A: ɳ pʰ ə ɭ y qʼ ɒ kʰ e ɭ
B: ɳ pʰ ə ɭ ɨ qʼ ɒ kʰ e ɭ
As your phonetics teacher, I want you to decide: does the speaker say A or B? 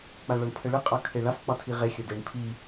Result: B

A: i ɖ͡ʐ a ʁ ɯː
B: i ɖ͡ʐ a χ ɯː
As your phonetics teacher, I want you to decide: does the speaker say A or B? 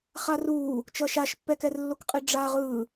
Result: A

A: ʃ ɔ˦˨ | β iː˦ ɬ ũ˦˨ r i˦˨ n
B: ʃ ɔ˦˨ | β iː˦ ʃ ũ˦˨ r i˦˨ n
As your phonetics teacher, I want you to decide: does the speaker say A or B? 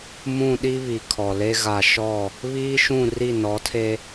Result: B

